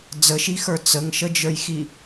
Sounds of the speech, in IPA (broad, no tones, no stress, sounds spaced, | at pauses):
d͡z ə ʃ i x ə˞ t͡s ə ŋ ʃ ə d͡ʒ ə˞ j x i